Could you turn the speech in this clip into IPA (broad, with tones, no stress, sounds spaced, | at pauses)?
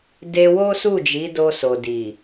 d e˧ w o˦ s u˦˨ d͡ʒ i˨˦ d o˧ s o˨ d i˨